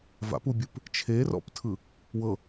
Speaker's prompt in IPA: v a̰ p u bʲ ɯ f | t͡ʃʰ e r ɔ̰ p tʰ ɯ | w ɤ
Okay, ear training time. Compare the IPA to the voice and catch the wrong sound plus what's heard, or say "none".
f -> p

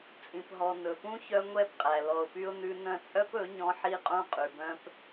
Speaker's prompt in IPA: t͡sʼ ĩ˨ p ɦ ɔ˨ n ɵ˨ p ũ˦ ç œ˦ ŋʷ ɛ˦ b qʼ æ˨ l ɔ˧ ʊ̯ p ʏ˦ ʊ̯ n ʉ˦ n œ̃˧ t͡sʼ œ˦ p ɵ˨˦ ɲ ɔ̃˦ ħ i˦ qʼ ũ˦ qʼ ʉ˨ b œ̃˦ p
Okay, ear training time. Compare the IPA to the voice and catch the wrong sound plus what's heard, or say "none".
ʏ˦ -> y˦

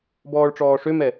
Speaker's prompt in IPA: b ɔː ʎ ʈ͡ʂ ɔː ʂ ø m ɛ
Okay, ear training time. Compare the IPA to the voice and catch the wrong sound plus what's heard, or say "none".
ʎ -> ɭ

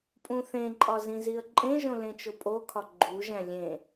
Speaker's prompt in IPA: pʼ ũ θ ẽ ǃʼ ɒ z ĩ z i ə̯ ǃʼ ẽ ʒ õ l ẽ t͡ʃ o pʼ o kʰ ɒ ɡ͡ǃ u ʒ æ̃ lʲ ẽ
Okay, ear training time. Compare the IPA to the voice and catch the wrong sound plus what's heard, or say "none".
none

